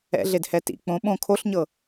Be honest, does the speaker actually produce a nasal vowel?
yes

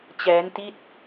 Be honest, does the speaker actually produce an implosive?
no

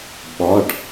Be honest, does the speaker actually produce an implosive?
yes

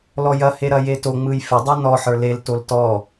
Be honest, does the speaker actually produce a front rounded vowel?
no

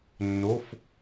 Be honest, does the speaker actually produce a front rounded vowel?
no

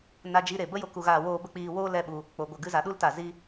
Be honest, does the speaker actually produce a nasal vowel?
no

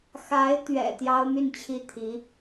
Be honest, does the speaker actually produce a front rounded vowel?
yes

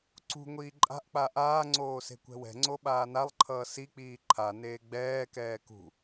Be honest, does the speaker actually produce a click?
yes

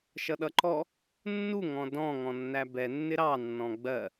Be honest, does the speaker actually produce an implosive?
yes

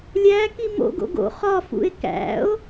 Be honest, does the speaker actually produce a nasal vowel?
no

